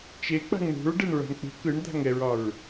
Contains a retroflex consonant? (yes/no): yes